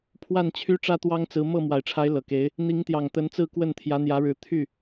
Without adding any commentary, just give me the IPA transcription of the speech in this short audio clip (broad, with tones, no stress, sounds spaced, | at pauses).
pʰ w a˥˩ n t͡ɕʰ y˥ ʈ͡ʂ ä˥ t̪ w ɑ˥ ŋ t͡s ɹ̩˧˥ m ɤ˥˩ m w a˨˩ ɪ̯ ʈ͡ʂʰ a˧˥ ɪ̯ l ɤ˨˩ k e˧˥ ɪ̯ | n̪ i˧˥ ŋ t̪ j ɑ˨˩ ŋ t̪ ə˧˥ n t͡s ɹ̩˥˧ k w ə˥˩ n t̪ʰ j ä˧˥ n̪ j ä˧˥ ɻ ɻ̩˧˥ t̪ʰ y˥˩